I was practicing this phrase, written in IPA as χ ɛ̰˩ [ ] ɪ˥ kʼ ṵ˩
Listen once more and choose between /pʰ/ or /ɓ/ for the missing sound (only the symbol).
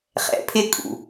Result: pʰ